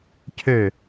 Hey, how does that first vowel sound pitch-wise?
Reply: falling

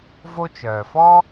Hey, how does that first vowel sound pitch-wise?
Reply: high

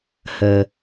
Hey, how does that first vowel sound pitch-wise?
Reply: low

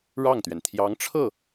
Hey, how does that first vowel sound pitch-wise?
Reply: falling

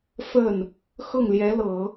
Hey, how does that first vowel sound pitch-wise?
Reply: falling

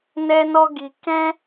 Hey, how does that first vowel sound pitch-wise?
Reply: high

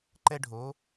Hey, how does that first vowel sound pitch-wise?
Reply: high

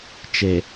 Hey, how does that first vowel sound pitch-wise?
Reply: low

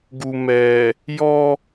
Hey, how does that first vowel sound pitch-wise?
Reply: low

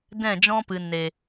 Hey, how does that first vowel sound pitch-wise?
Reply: falling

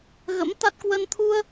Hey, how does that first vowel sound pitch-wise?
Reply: rising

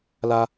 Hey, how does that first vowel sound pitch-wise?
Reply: high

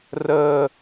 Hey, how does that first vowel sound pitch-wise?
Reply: high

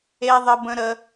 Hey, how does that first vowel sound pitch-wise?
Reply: high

